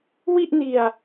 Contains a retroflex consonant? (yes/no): no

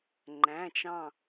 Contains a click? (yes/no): yes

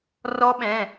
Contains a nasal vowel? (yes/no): yes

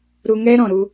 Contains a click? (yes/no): no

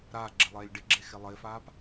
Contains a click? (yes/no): yes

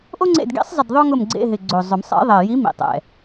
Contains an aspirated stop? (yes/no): no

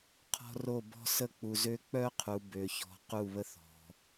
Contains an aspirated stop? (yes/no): yes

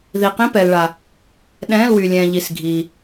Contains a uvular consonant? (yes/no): yes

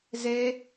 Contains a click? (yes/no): no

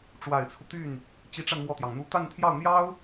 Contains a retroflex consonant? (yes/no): yes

